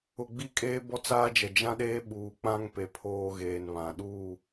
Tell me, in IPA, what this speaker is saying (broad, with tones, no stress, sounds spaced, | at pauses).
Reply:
ʊ˨ ɡ͡b i˦ kʼ eː˦ b ɔ˦ t͡s aː˦ d͡ʒ ɛ˨ d͡ʒ ã˦ ɗ eː˦ ɓ uː˨ k͡p ã˦ ŋ p e˨ pʰ oː˦ ɣ eː˨ n β ã˨ ɗ uː˦˨